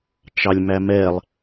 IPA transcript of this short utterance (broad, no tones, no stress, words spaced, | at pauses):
t͡ʃɑlʲmæmɛlˠ